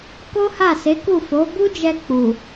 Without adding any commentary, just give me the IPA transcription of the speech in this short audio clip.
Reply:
ko˦ha˦˨se˨˦ku˦˨ fo˨˦ bu˦d͡ʒɛ˧ k͡pu˨

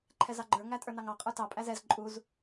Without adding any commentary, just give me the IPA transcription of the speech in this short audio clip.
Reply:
ǃʰɛzɑɡ͡ǃə˞ ŋætʼə˞nɑŋɑ qʼə˞tɑ pʼæzɛz ǃʼuz

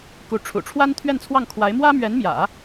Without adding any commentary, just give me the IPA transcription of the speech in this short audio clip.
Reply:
ku˧˥ʈ͡ʂʰṵ˨˩ ʈ͡ʂʰwa˥nt̪ʰɥɛ˥˧nt͡sʰwɑ˥˩ŋkʰwa˧˥ɪ̯ mwä˥mɥɛ˧˥nmjä̰˨˩˦

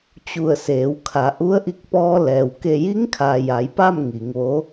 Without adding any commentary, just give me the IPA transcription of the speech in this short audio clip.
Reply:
t͡ɕu˧˩ə̯seː˩˧wkʰa˩˧ ʔu˧˥ə̯ ʔi˧k̚pɔː˧ lɛː˩w ke˧˩ji˧˥ŋkʰaː˩ ja˩˧jpa˥˨m ŋi˩˧ŋʋo˧˥

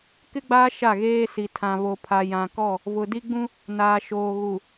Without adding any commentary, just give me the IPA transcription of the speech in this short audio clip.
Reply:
kɪ˦ɡ͡baː˦ ʃa˦˨ɣeː˦si˨ tʰã˨ βo˨pʰa˨ jã˨kɔ˦˨ | vʊ˨di˦ɡ͡bũ˦ | naː˨ʃoː˨ɣu˨

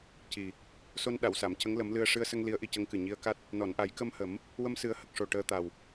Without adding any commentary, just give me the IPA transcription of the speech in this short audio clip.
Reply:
ci˨˩ | so˧nɗa˨˩˨wsa˨˩˨m cə˧˥ŋlə˨˩˦mlɨ˧ə̯ ʂɨ˧ə̯sə˧ŋ li˧˥ə̯ʔi˧cə˧˥ŋkɨ˨˩ ɲi˧ə̯ka˦˥t̚ | nɔ˨˩˨nʔa˨˩˦jkə˧mhə˨˩˦m | wə˧msɨ˨˩˦ə̯ hə˨˩k̚ʂo˨˩ ʈəː˧t̪a˨˩w

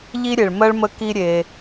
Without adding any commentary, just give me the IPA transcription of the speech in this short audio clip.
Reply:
ʎi˥ɾʲe˩ɭmɜ˥ɭmə˦ ki˦ɾʲe˨

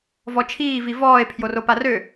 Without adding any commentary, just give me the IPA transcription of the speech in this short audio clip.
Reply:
vɔt͡ʃʰiː vivɔːe̯ pʰjoroparø

